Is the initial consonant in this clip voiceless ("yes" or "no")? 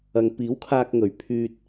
no